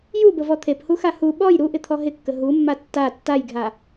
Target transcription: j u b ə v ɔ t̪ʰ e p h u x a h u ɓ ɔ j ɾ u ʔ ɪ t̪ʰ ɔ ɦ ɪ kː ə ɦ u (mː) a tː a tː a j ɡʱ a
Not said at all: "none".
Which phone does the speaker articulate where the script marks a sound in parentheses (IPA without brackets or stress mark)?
mː